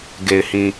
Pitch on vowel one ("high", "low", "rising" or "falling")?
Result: low